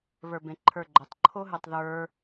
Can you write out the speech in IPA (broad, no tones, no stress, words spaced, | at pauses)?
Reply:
βə˞bẽǃʰə˞ɡ͡ǃotˤ ǃʰoɦɨtˤðə˞